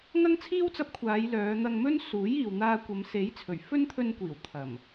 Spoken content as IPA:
ŋ ɐ˥ ŋ t͡sʰ iː˥ w t͡s ɐ˧ p̚ kʷʰ aː˨˧ j l œː˨˧ n̪ ɐ˧ ŋ m ɵ˥ n s uː˨˥ j iː˨ w n̪ aː˧ kʷ ɐ˨˧ m s e˨˥ j t͡sʰ ɵ˨˩ ɥ f ɵ˥ n t̪ʰ ɵ˧ n kʷ iː˨˩ w t̪ʰ ɐ˨˩ m

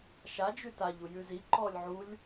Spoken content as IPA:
ʃ a d͡ʒ ʉ t a ʎ u j ʉ z i ǃ ɔ lʲ ʕ u lʲ

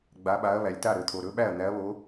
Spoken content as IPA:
ɡ͡b a˨˦ ɓ a˨˦ ɐ̯ β æ˩ lʲ t a˥˩ ɾ ɵ˩ t̪ʰ o˩ ɾ ɵ˨˦ ɓ æ˥˩ ɐ̯ n̪ æ˨˦ ɐ̯ β o˨˦

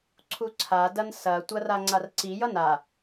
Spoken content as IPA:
ǀʰ u ǀʰ a d ɐ n s ɐ tʷ ɐ r a ŋ͡ǀ a r ǀ i j ʌ n a

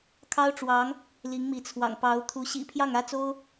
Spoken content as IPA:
kʰ ɑ˥ ʊ̯ ʈ͡ʂ w ɑ˧˥ ŋ | l i˧˥ ŋ m i˧˥ t͡sʰ w ɑ̰˨˩ ŋ p ɑ˧˥ ʊ̯ t̪ʰ u˧˥ ɕ ḭ˨˩ pʰ j ɑ˥˩ ŋ ä˥ t͡s o˥ ʊ̯

